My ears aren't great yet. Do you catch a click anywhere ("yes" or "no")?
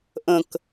no